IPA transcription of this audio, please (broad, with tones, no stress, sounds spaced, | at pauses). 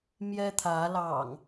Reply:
m j ɛ˦ t̪ʰ ä˨˦ l ɑ̰˨˩ ŋ